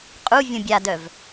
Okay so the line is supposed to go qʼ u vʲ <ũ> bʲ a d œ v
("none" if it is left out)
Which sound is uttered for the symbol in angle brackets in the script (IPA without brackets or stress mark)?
ũ